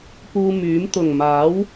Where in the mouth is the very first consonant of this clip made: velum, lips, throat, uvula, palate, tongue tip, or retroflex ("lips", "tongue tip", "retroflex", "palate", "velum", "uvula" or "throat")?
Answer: lips